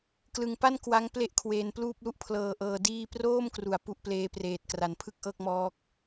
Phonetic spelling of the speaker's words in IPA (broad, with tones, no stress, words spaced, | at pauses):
klɯ˧ŋpa˥˩n kwa˦˥ŋ ple˥˩ʔkʰweː˧npluː˥˩p̚lu˥˩ʔ pʰlɤː˨˩ ʔɤː˧diː˥˩ proː˥˩mkru˩˦a̯ pu˦˥ʔpleː˦˥preː˨˩t̚ kra˩˦npʰɯ˥˩k̚ʔɤː˥˩k̚mɔː˦˥k̚